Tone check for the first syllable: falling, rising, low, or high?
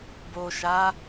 low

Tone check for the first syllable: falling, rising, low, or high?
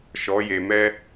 rising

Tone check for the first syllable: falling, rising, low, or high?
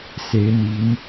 rising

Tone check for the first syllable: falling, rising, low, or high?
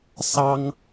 high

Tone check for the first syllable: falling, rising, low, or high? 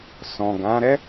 low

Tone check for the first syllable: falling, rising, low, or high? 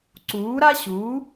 rising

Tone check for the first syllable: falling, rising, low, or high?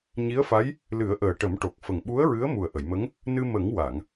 rising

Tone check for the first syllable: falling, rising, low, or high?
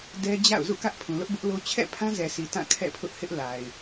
high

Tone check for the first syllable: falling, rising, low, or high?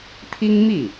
high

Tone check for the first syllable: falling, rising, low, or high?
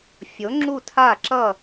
rising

